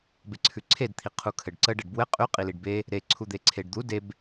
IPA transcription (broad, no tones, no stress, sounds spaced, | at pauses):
b e ǀʰ ʉ ǀʰ e d t̪ʰ i qʰ u kʰ ɘ ɖ ǀ ə ɖ ɘ ɖ b w ɘ qʼ ʉ qʼ i l i ɖ b e | ɾ e ǀʰ u d̪ e ǀʰ e ɖ d̪ u d e b